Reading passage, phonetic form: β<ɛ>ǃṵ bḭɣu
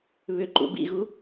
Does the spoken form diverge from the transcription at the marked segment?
yes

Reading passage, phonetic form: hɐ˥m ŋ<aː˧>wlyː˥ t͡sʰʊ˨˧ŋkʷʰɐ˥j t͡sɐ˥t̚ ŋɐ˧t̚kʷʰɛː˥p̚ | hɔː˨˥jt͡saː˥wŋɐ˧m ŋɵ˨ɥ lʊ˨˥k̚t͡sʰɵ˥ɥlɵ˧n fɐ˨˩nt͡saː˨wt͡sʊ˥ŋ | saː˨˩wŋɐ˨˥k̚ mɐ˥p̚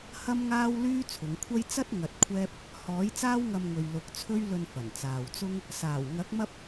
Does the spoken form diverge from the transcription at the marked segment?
yes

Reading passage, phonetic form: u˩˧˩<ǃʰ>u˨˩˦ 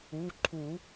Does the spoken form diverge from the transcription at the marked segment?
no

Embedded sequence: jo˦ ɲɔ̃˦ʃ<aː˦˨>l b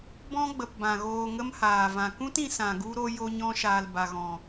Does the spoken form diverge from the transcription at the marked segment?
yes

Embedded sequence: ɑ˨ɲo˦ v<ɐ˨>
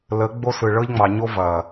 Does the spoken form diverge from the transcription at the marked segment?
no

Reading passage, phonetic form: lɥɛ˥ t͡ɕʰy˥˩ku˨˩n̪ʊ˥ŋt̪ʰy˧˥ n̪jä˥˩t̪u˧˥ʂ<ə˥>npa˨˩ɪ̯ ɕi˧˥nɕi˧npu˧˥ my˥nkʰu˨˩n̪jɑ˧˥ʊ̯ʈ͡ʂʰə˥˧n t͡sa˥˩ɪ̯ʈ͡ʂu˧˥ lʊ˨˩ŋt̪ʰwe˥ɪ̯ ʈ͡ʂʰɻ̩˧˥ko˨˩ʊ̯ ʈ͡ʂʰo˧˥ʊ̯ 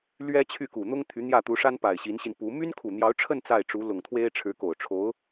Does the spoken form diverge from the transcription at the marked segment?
yes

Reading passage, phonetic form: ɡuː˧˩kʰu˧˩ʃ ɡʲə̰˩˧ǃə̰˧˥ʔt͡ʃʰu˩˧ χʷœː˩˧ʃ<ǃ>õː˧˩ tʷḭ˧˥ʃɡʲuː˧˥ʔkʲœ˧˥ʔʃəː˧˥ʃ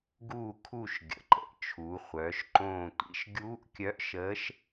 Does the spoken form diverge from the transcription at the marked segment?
no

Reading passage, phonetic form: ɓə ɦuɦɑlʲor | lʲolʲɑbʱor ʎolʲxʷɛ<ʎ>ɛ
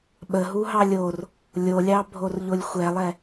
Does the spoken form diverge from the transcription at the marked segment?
yes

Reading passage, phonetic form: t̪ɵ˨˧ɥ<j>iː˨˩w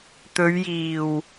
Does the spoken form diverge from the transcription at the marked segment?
no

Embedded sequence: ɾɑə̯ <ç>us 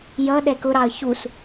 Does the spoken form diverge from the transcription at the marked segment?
no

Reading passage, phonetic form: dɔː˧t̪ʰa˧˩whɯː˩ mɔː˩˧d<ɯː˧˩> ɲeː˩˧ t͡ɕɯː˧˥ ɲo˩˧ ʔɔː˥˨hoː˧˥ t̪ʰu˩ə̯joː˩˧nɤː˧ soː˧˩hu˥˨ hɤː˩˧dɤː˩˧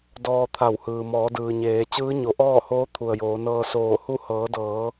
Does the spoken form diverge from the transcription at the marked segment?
yes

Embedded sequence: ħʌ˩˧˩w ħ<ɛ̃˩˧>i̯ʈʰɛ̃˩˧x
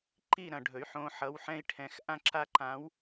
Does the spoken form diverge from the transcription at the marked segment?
yes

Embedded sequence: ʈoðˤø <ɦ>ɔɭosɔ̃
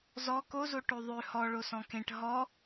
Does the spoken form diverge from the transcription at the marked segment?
yes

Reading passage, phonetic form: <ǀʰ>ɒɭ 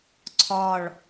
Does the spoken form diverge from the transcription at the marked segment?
no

